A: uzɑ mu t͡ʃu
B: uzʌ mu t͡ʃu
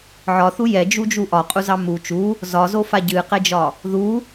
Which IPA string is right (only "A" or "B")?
A